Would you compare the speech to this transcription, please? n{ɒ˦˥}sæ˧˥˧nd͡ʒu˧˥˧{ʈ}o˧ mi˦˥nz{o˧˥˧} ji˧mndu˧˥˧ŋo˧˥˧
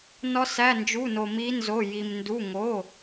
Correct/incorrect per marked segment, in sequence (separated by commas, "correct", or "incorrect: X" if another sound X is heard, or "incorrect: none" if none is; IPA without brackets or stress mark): correct, incorrect: n, correct